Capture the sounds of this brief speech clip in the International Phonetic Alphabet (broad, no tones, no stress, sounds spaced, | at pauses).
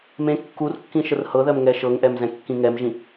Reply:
m ẽ kː u r kː ĩ ʃ ə r h ɤ ð ɜ m ŋ ɛ ʃ ɤ ŋ ʔ ɛ m z ɛ̃ kː ĩ ŋ ɛ m ʒ ĩ